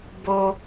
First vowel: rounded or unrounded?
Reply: rounded